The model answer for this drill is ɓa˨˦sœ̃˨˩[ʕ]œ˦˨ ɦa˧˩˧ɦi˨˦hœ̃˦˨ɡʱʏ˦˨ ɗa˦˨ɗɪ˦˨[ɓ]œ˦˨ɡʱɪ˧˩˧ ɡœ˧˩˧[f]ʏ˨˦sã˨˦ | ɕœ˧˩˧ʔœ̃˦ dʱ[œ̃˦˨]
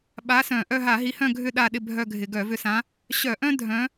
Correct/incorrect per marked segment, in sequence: incorrect: ʔ, incorrect: bʱ, incorrect: v, incorrect: œ̃˨˦

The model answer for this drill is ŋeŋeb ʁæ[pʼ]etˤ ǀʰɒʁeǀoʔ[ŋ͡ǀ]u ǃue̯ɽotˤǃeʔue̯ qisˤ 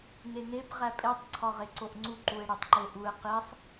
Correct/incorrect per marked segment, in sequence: correct, correct

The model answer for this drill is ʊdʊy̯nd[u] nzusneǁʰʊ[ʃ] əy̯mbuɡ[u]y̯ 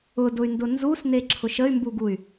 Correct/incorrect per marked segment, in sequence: incorrect: ʊ, correct, correct

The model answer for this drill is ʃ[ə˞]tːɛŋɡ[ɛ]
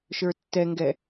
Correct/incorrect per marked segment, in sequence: correct, correct

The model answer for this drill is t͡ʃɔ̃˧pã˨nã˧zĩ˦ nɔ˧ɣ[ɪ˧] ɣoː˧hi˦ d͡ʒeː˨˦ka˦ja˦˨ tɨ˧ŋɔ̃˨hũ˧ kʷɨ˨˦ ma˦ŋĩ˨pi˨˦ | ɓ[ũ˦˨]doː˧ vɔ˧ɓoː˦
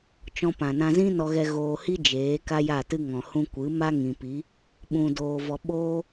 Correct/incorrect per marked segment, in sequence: incorrect: ɛ˧, incorrect: ũ˧

